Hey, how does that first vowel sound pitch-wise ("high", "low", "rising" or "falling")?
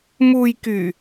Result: low